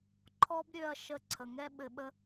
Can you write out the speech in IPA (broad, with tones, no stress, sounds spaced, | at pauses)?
ǃʰ ɔ˦ b ɾʲ ø˧ ɐ̯ ʃ ə˧ ǀʰ ə˨ ŋ ɛ˦ ɓ ɘ˧ ɓ ə˦